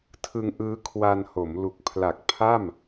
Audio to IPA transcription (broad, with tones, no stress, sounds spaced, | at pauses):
tʰ ɯ˧ ŋ ʔ ɯː˦˥ kʰ w a˧ n h o˩˦ m l u˨˩ k̚ pʰ l a˨˩ k̚ pʰ a˥˩ m